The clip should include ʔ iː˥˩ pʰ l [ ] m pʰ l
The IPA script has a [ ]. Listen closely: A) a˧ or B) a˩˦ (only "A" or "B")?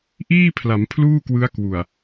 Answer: B